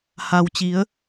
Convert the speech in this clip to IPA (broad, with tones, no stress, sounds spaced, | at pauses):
h a˩ w t͡ɕ i˩˧ ə̯